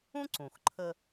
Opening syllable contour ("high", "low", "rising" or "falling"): high